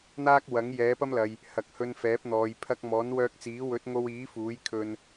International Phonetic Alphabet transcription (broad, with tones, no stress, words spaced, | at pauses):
n̪aː˥k̚ wɐ˨˥ŋ jɛː˨˥pɐ˥mlɐ˨j | hɐ˨k̚hɵ˧nfɛː˨˥p̚n̪ɔː˨j pʰɐ˧k̚mɔː˨˥nwœː˧k̚t͡siː˨˥ wɵ˨˥t̚ŋo˧wiː˨˥ fuː˨˥jkʰɵ˧n